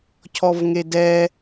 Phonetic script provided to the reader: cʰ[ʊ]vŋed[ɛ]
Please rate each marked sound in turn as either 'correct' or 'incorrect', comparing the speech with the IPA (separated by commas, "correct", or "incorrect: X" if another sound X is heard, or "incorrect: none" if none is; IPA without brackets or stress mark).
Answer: incorrect: ɔ, correct